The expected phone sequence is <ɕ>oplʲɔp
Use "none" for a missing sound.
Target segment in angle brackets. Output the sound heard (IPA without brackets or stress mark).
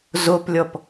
z